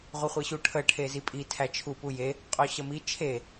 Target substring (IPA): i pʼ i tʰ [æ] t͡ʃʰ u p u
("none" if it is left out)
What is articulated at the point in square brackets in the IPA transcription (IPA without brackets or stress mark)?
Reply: æ